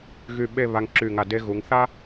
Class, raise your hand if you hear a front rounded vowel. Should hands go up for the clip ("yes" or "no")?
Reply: yes